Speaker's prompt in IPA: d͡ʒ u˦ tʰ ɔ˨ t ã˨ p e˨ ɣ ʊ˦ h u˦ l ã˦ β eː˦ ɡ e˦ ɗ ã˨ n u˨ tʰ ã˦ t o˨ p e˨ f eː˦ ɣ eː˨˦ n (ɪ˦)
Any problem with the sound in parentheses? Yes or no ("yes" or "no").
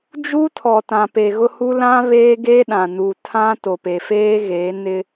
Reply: no